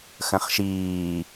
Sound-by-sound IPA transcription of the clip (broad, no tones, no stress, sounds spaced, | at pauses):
x ə̃ χ ʃ iː